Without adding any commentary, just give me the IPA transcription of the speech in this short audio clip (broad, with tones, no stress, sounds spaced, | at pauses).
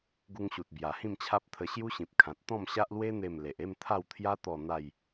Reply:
ɡ u˧ ŋ ɕ u˨ t̚ b j a˨˩ h ĩ˥˧ m t͡ɕʰ a˦ p̚ t̪ʰ ə˧ ɕ j u˦ ɕ ĩ˨ p̚ kʰ ã˨ t̚ t̪ ɔ̃˥˧ m ɕ a˦ ʔ l w e˦ n̪ e˥˧ m l e˨ ʔ e˥˧ m t̪ʰ a˥˧ w t̪ʰ j a˦ t̪ ɔ˥˧ n̪ a˥˧ j